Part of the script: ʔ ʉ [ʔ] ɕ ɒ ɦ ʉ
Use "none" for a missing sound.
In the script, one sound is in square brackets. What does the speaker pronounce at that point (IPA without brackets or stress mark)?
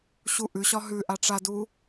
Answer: none